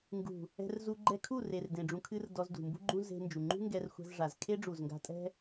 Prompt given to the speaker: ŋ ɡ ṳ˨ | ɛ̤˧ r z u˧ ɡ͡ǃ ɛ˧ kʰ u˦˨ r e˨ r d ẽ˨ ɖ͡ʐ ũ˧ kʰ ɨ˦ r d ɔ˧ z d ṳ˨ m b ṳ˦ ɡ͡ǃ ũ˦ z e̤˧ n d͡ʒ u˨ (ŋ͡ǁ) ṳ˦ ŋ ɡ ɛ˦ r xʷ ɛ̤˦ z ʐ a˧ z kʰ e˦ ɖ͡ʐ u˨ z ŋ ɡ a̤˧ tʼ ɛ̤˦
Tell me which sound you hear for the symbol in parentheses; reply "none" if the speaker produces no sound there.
ŋ͡ǃ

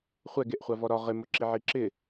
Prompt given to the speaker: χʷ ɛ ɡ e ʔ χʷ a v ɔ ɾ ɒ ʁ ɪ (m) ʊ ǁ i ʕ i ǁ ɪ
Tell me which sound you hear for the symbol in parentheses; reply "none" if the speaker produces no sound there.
m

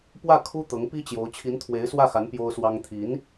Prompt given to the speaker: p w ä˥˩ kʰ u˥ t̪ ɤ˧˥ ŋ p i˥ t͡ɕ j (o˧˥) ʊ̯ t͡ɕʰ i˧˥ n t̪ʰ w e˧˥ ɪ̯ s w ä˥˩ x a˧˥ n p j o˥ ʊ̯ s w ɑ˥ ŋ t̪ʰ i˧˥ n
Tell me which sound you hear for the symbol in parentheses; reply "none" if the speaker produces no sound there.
o˧˥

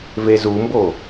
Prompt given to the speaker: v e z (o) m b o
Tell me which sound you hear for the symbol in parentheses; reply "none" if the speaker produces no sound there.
u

